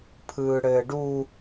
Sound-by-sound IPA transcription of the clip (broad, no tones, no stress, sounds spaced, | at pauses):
pʰ ɯː ɽ ɘː ɖ u